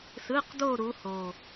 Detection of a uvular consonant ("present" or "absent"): present